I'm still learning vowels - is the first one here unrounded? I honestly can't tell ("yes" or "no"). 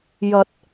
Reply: yes